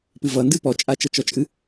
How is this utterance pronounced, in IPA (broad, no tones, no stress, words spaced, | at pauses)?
pɨvʌ ndɨpɔ t͡ʃʼat͡ʃʌt͡ʃɔt͡ʃʼɨ